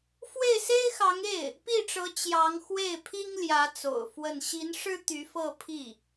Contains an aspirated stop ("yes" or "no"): yes